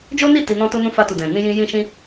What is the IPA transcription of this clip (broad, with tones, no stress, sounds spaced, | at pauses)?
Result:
d͡ʒ o˦ n i˦˨ t i˧ n ɔ̃˦ t o˦ n ũ˦ f a˧ t u˨ d ɛ̃˨ n ĩ˧ j ĩ˧ j ĩ˦ ʃ ĩ˦